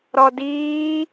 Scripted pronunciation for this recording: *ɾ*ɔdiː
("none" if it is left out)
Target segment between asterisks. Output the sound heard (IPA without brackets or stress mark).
ɾ